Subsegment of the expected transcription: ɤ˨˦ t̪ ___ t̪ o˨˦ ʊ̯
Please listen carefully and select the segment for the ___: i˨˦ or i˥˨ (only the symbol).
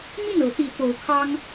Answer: i˨˦